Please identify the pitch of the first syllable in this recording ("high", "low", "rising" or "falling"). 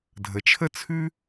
low